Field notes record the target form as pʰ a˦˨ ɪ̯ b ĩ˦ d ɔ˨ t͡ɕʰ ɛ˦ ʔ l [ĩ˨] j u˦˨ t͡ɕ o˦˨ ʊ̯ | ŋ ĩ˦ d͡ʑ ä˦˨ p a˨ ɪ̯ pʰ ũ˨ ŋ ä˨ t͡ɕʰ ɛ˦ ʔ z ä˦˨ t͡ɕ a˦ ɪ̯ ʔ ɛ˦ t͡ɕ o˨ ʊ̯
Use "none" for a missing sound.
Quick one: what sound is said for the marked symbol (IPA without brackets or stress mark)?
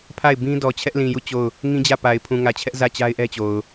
ĩ˨